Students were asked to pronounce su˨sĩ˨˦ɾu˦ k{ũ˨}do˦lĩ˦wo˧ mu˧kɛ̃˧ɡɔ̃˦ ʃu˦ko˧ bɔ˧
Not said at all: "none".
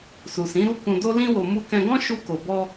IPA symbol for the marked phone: ũ˧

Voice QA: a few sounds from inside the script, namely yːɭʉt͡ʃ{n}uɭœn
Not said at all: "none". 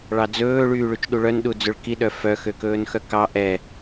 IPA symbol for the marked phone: ɗ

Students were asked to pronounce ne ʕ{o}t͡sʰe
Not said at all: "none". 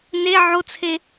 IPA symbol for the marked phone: o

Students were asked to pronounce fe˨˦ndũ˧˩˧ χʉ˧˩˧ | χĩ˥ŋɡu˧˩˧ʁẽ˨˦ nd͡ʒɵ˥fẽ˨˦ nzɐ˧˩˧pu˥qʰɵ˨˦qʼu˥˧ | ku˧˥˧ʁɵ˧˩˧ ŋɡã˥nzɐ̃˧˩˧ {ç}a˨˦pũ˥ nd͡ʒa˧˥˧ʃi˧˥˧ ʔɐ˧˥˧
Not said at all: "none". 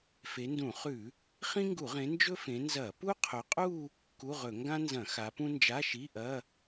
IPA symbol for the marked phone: x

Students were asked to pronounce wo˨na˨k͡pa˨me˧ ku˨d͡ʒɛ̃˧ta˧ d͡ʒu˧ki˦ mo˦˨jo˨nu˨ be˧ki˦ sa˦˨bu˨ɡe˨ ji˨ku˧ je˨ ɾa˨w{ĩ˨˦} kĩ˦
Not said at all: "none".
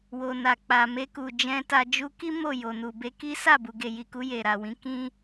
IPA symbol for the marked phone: ĩ˨˦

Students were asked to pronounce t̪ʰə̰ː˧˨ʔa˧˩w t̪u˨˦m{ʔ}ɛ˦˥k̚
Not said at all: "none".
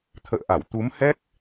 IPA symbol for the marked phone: h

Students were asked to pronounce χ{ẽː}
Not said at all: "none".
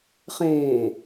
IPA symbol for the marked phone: ẽː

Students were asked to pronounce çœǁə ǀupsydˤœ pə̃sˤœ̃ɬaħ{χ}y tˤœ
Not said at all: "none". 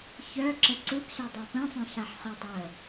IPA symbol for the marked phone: χ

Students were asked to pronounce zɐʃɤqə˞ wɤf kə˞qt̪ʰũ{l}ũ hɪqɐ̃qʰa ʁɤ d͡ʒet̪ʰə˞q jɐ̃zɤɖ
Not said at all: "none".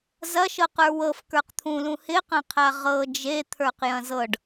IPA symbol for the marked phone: l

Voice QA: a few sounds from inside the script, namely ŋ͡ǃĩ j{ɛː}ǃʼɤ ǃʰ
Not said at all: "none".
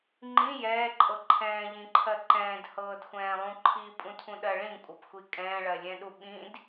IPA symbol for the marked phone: ɛː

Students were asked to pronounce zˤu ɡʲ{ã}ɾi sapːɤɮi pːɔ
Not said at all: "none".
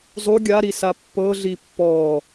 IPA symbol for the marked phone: a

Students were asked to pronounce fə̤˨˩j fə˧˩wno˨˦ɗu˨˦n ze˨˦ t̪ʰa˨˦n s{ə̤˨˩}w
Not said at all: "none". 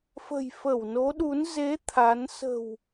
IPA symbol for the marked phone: ə̤˨˩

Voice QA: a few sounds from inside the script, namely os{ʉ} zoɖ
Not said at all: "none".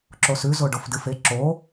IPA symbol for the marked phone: ʉ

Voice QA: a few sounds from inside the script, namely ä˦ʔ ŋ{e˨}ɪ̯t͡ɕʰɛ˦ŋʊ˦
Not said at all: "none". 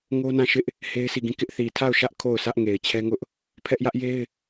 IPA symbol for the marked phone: e˨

